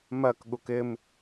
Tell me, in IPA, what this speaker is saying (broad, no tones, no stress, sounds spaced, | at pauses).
m ɜ k ɠ u k ɪ m